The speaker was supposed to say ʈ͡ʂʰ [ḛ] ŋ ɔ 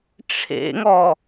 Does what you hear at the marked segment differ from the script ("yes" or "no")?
no